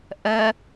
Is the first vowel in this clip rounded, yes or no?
no